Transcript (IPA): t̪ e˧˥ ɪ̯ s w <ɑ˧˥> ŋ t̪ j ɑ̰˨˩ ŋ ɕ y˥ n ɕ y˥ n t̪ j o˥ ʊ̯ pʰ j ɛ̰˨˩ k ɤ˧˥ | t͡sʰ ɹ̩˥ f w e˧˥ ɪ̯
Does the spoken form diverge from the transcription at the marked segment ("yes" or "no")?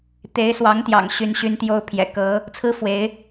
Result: no